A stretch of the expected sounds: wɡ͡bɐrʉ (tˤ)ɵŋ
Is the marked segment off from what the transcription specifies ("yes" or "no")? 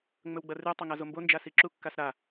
no